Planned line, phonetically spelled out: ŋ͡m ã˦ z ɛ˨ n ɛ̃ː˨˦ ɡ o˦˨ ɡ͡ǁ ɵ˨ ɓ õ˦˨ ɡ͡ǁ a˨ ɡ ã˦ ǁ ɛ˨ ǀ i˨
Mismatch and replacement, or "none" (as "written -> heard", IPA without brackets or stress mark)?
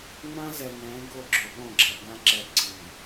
none